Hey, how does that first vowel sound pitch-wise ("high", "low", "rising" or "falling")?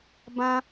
high